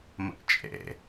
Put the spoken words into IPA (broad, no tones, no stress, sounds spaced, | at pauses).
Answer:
m ə̰ ʔ t͡ʃʼ ḛ